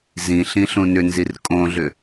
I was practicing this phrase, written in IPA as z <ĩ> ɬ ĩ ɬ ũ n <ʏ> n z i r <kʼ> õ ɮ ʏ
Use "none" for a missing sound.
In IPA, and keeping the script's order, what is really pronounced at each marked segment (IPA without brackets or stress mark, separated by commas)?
ĩ, ʏ, kʼ